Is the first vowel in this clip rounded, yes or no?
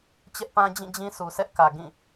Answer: no